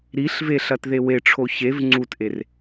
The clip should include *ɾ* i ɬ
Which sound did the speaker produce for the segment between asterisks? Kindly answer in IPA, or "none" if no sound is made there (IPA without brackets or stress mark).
ɾ